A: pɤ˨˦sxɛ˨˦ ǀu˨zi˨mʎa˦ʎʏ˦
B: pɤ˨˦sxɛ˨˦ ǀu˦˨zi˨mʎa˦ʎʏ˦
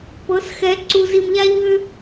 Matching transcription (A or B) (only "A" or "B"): A